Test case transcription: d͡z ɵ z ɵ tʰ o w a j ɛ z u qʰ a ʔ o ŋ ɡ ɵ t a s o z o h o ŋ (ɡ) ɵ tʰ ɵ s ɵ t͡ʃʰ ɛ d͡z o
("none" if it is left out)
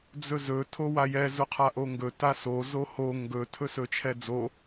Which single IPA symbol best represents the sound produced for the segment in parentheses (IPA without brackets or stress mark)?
ɡ